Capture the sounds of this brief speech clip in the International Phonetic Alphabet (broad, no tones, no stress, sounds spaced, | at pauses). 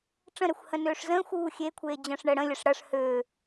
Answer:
ʈ͡ʂ ə̃ ɾ ɛ xʷ h ə̃ n øː ʂ z ə̃ː xʷ uː xʲ e kʷʰ eː d͡ʑ ə̃ː ʂ ɳ əː ɽ ə̃ lʲ ə ʂ ɽ ɐ ʂ h øː